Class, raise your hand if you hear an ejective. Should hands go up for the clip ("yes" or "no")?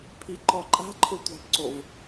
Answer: yes